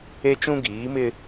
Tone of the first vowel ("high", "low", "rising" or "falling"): high